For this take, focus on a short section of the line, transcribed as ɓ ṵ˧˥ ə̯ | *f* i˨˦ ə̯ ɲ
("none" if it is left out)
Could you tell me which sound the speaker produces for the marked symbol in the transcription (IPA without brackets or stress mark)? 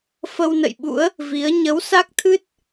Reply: v